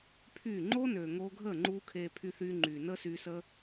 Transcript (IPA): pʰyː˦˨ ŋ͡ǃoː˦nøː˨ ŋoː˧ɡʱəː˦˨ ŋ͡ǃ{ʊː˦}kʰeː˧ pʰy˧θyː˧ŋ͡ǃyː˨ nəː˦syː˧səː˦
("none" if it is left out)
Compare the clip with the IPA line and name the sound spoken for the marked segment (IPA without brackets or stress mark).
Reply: uː˦